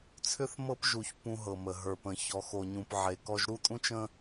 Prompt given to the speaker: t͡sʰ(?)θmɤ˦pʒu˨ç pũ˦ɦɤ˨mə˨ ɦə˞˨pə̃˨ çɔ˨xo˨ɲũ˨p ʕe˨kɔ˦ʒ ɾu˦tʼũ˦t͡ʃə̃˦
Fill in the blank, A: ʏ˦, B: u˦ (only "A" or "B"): A